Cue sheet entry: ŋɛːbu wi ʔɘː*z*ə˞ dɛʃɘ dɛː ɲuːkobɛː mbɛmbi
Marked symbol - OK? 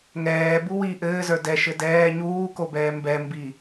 yes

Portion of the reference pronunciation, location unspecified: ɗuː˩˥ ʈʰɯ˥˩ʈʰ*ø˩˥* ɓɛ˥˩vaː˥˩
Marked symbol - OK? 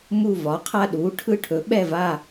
no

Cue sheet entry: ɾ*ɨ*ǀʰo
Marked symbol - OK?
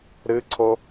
yes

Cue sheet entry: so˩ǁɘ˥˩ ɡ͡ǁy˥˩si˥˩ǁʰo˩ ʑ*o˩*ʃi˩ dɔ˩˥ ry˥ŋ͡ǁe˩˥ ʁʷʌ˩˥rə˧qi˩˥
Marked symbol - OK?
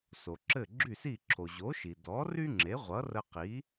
no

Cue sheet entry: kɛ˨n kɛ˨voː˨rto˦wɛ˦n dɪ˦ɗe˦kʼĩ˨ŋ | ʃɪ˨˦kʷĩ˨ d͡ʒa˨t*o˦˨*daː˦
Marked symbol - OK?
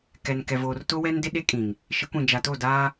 yes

